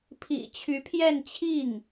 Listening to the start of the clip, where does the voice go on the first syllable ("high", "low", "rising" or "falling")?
low